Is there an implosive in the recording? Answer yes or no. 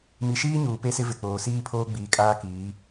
no